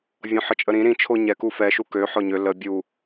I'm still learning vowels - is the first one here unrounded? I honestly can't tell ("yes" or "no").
no